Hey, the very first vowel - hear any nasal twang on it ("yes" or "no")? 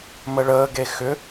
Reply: no